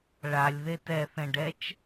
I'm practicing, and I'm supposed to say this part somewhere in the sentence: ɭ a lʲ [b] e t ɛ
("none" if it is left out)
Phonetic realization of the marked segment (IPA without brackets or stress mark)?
ð